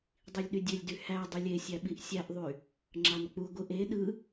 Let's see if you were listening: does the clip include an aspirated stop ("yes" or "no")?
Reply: no